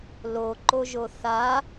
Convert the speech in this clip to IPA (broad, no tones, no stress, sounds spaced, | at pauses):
l o ǃ o ʒ o θ a